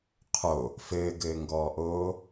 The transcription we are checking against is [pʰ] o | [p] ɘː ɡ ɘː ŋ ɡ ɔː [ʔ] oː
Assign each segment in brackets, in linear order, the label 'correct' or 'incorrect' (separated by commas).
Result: incorrect, incorrect, correct